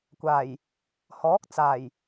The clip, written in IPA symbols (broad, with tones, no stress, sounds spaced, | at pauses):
kʷ aː˨˩ j | h ɔː˨˥ k̚ t͡s aː˨˩ j